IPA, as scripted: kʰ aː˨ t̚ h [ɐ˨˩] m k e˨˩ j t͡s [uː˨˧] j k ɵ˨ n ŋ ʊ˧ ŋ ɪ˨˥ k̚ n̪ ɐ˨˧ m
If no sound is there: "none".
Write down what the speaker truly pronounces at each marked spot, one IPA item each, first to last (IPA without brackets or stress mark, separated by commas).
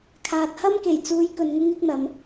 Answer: ɐ˥, uː˨˧